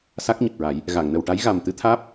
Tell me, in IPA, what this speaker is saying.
s a˦˥ k̚ ɲ ə˨˩ k̚ ɹ a˨˩˦ j | ɣ a˨˩˨ ŋ n ə˨˩ w ʈ a˧˥ j ɣ a˨˩ m t̪ ɨ˧˥ t̪ʰ aː˦˥ p̚

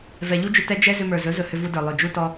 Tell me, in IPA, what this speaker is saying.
v ɛ˨ ʎ u˦ d͡ʒ ʏ˧ t ɛ˦ d͡ʒ ɛ˦ z ʏ˧ m ə˞˨ z ɵ˨˦ z ɵ˨ h ʏ˧ v u˧ d ə˞˨ lˠ ɵ˨ d͡ʒ u˧ t ɔ˧

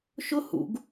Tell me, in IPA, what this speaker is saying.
ʃ ʊ h ṵ ɡ

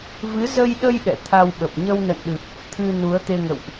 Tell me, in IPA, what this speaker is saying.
v ɨ˨˦ z ə˧ j ɗ ə˧ j ɗ ɛ̰˧˨ t̪ʰ a˧ w ɓ ə˨˩ p̚ ɲ ə˧ w n ə̰˧˨ n ɗ ɨ˨˩ p̚ | t̪ʰ ɨ˧ n u˨˦ ə̯ t̪ e˧ ŋ ə̰˧˨ w ʔ

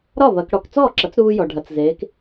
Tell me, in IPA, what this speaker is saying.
ɾ ɒ˥˩ β ɐ˩˧ k ɽ ɔ˩ k t͡s ɔː˥˩ ǁ ɐ˩˥ t͡s ɾ uː˧ j ɔ˩ ɖʱ ɐ˩˧ t͡s z eː˩˧ k

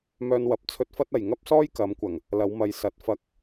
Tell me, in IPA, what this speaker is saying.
m œː˧ n w ɐ˨˥ p̚ t͡sʰ ɵ˧ t̚ f ɐ˥ t̚ ɐ˨ j ŋ ɐ˥ p̚ s ɔː˥ j k ɐ˨˧ m kʷ ɐ˨˩ ŋ | l ɐ˨˧ w m ɐ˨˧ j s ɐ˨˥ t̚ f ɐ˧ k̚

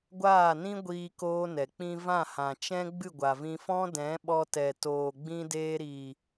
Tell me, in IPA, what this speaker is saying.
ɡʷ aː˦˨ n ĩ˦ ɡʷ iː˧ k oː˧ n ɛ˨ k͡p ĩ˧ v ã˦˨ h ã˨ t͡ʃ ɛ̃˧ ɡ͡b ɨ˦˨ ɡʷ a˨ v ĩ˧ f ɔ̃˦ d ɛ̃˨˦ ɓ ɔ˧ t ɛ˨ t oː˨ ɡ͡b ĩ˧ d eː˧ ɾ iː˨

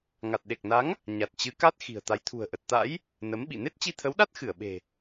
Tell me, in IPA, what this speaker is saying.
ŋ a˨˩ t̚ ɗ e˨˩ k̚ n a˨˦ ŋ | ɲ a˨˩ t̚ t͡ɕ ɨ˨˦ k a˦˥ t̚ x i̤˨˩ ə̯ t̪ a˨˦ j t̪ʰ ṳ˨˩ ə̯ ʔ ə˨˩ t̚ t̪ a̰˧˥ j | n ə˨˦ m ɓ ḭ˧˨ n e˦˥ t̚ t͡ɕ i˧ t̪ʰ ə˨˦ w ɗ a˦˥ t̚ x ɨ˧˩ ə̯ ɓ e̤˨˩

